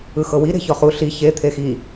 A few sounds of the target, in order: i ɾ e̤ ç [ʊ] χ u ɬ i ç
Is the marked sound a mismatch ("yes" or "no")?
yes